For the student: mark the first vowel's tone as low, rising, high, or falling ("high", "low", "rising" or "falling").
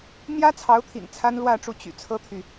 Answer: high